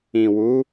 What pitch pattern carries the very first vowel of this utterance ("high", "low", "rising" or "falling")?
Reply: low